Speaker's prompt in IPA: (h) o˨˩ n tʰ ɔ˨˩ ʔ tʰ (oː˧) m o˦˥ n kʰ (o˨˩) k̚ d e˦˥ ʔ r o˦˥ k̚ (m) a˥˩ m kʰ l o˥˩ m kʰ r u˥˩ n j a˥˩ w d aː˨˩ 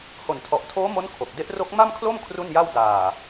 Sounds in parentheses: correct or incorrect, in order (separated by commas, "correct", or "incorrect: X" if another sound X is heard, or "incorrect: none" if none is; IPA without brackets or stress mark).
correct, incorrect: oː˦˥, correct, correct